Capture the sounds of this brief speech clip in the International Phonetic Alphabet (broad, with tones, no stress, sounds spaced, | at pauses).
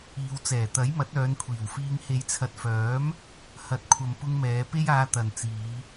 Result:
iː˨˧ w t͡s ɛː˨˩ t̪ ɐ˨˥ j m ɐ˨˥ t̚ œː˨˧ n kʷʰ iː˨˩ w f iː˧ ŋ h e˨˧ j t͡sʰ ɐ˨ t̚ f œː˨˥ m | h ɐ˨˥ t̚ kʷʰ ɐ˨ m p ʊ˧ ŋ m ɛː˨˧ p e˥ j aː˧ t̪ ɐ˨ n t͡s iː˨˧